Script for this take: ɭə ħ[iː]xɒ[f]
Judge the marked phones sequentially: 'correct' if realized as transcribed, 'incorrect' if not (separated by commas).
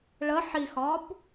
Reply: incorrect, incorrect